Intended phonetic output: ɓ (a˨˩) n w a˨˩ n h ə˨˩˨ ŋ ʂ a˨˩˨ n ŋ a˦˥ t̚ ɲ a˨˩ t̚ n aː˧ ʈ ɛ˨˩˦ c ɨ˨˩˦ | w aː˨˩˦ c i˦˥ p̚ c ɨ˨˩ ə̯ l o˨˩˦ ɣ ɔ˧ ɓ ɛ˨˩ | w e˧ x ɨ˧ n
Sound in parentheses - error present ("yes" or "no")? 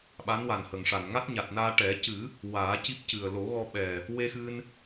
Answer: yes